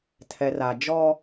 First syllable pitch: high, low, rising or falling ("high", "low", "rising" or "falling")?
low